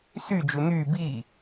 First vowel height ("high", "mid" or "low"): high